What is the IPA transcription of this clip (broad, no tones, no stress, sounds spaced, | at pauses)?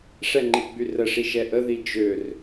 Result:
ʂ ɛ ŋ͡ǃ i ɡ͡b y r ə ʂ i ʃ ɛ ʔ ə ð i d͡ʒ ø r